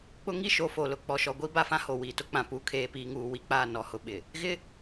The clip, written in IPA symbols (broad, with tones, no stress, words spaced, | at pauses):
k͡pʊ˦ŋi˦ ʃo˨fo˨ lʊ˨k͡pɔ˨ʃɔ˨ ɡʷi˦ ba˦fã˦ho˨ wiː˨tʊ˦k͡pã˨ puː˨kʰeː˨piː˨ŋuː˨ wi˨k͡paː˦˨ nɔ˦˨hʊ˦ɓɪ˨ | ɣɪ˦